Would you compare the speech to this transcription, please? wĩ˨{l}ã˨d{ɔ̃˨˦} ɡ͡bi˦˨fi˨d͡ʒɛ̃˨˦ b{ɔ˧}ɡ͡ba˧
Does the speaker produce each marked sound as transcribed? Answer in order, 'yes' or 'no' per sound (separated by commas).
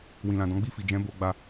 yes, yes, no